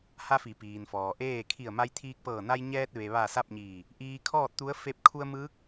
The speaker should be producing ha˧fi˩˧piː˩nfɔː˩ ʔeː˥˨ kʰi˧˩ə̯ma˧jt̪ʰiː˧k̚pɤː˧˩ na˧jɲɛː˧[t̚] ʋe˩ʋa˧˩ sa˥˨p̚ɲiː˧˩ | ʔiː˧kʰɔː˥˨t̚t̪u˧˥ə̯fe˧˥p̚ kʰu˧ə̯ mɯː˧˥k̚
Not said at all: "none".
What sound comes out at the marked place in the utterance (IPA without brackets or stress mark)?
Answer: t̚